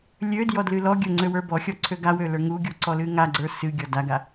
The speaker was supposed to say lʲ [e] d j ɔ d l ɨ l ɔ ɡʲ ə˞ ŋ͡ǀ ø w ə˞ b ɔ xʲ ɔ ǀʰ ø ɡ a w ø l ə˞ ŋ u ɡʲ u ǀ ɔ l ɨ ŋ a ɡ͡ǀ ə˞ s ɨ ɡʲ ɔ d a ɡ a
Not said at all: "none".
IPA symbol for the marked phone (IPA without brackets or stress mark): ø